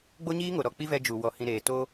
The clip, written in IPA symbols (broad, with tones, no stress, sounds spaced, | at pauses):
ɡ͡b o˦ ɲ iː˦ ŋ o˨ ɾ ɔ˨ k͡p i˦ v ɛ˧ d͡ʒ u˨ w ɔ˨ h ĩ˨ ɾ eː˨ t o˦